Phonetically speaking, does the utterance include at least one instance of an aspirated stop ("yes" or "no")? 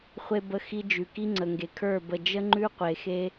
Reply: yes